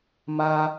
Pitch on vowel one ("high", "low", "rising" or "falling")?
high